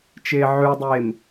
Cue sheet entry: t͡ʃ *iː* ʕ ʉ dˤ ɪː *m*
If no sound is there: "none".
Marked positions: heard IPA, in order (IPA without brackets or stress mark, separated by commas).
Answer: ɪː, m